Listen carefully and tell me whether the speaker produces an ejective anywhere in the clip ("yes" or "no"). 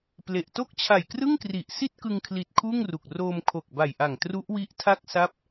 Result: no